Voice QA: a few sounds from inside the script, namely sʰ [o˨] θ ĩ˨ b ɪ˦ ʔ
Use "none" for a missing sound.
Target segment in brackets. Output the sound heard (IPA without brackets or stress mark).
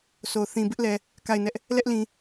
o˨